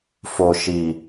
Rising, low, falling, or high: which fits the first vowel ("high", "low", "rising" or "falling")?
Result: low